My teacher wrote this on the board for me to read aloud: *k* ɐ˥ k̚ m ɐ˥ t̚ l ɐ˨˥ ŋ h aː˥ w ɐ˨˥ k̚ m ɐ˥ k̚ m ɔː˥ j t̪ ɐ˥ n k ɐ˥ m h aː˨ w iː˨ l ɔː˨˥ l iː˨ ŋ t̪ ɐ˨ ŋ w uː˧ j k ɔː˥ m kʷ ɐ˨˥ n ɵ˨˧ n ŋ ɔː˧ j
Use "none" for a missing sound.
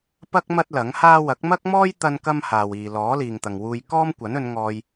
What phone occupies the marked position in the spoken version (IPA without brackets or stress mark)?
p